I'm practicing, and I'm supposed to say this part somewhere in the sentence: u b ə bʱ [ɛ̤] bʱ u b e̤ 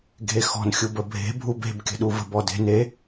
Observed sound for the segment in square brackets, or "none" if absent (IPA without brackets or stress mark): e̤